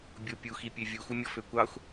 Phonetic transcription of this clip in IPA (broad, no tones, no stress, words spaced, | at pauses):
bʲopʲuxipʲø vʲuxumʲɔ føkʷɑxʷ